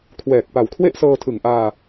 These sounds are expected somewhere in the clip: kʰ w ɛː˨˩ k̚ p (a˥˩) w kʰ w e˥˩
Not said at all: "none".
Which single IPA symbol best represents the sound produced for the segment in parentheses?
a˨˩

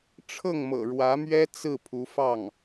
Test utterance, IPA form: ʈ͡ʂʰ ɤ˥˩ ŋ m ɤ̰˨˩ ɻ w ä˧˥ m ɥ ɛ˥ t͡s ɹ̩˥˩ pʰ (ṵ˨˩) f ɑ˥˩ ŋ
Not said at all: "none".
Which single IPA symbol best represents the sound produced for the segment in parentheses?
u˧˥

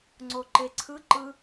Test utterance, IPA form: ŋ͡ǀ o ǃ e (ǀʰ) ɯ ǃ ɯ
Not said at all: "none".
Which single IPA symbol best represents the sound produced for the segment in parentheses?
ǀʰ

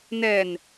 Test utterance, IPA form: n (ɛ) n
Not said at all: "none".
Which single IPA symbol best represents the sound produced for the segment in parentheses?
ɛ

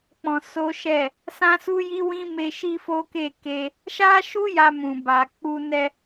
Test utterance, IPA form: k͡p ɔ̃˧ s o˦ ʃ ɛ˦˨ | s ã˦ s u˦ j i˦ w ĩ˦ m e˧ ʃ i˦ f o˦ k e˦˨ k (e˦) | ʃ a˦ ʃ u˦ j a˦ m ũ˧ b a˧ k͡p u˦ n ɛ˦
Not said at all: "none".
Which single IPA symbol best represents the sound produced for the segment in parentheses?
e˧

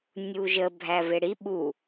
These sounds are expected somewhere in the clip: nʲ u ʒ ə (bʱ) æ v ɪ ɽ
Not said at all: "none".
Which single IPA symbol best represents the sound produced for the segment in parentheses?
bʱ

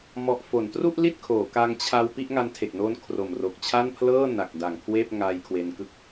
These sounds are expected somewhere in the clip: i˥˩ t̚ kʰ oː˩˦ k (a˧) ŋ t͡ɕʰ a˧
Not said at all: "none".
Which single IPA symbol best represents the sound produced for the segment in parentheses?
a˧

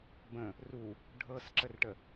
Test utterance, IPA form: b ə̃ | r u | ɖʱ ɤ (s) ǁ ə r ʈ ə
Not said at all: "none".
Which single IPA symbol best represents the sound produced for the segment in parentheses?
s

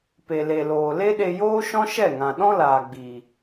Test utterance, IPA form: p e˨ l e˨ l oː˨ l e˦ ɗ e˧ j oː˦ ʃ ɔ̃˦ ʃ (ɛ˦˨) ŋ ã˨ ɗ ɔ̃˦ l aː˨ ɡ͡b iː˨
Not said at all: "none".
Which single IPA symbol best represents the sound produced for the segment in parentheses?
ɛ˦˨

